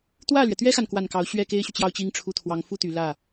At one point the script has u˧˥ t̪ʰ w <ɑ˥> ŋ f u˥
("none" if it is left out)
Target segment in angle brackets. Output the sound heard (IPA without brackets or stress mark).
ɑ˧˥